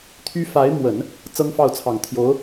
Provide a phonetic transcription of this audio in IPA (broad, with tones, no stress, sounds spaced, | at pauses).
t̪ʰ y˥ f a˧˥ ɪ̯ m w ə˨˩˦ n | t͡s ɤ˥ ŋ f ɑ˥˩ ʊ̯ t͡sʰ ɑ˨˩ ŋ t̪ʰ j o˧˥ ʊ̯